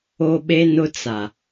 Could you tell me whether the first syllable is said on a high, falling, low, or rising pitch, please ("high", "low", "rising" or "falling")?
high